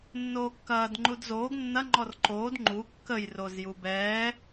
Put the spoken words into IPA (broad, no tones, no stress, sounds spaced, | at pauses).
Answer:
nː oː kː ɐː d ŋ͡ǃ u d z oː ɡ nː ɐ ŋ͡ǃ ɔ r ǃ oː d ŋ͡ǃ u kː ə j r o z j u b ɛː